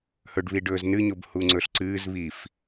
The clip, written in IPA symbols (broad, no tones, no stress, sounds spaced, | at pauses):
h ɵ ɖ β i ɖ ɵː z n ɨ ɲ o b h u ŋ͡ǀ ɵ ɬ ǀ ɨː z β i f